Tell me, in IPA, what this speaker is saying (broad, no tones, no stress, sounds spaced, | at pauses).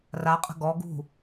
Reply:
r a qʼ ə̤ ɡ ɔ ɡ ṳ